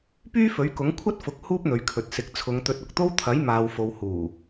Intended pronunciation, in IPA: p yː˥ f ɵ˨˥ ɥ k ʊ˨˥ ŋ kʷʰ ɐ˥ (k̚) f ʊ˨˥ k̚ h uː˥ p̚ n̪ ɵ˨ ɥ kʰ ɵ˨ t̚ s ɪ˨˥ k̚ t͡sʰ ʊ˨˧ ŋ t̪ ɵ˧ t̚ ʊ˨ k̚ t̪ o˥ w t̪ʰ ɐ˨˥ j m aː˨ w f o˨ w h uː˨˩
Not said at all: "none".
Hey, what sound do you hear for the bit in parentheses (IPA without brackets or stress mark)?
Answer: t̚